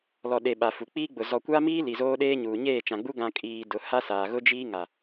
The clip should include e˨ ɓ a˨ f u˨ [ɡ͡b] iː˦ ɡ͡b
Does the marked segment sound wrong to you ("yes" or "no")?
yes